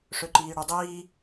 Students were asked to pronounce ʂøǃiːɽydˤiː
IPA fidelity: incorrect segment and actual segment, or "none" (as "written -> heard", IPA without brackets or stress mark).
none